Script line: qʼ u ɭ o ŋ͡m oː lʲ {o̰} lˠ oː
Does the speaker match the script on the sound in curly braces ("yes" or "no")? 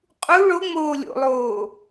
yes